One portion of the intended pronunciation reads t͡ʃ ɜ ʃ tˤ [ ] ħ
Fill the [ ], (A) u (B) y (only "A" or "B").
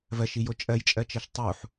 A